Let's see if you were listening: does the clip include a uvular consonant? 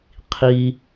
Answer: yes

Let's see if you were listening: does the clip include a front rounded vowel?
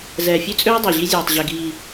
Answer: yes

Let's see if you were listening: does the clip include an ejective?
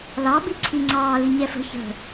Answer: no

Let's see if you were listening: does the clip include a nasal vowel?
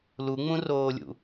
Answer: yes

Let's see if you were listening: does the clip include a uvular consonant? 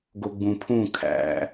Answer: no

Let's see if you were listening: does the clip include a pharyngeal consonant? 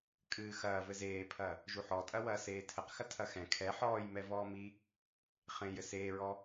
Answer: yes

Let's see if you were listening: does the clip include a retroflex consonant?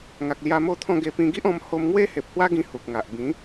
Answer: no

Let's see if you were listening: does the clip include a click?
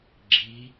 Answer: yes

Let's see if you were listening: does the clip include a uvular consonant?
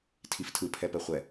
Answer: yes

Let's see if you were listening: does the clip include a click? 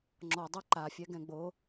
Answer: yes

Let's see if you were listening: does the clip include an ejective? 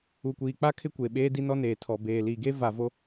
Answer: no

